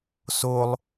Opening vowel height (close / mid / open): mid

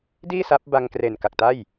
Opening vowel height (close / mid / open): close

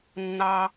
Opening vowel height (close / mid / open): open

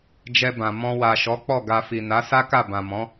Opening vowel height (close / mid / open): mid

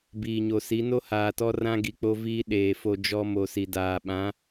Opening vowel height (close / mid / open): close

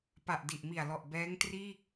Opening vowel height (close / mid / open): open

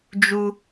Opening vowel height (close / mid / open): close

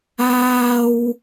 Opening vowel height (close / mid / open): open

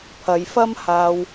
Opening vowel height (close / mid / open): open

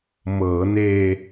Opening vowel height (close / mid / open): mid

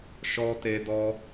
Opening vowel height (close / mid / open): mid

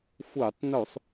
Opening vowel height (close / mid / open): close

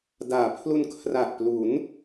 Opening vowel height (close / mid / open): open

